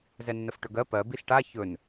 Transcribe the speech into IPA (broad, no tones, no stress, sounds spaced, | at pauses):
z ɛ nː ə f ʈ ɵ ɡ ɜ p ɜ b i s ʈ a ç ɵ n